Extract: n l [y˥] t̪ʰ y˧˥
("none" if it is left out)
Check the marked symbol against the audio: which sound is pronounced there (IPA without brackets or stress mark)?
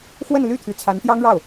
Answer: y˥˩